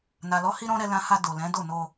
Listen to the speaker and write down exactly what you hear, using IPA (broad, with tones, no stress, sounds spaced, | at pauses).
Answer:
n a˨ l ɔ˨˦ h i˦ ɾ ɔ̃˦ ɾ ɛ˧ l ã˧ h a˧ d o˨ l ɛ̃˨˦ d o˦˨ n o˧